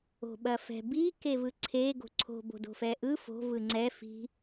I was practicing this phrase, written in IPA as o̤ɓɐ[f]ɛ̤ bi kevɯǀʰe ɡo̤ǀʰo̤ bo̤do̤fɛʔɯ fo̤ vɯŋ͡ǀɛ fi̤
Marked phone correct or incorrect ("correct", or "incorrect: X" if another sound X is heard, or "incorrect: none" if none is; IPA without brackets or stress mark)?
correct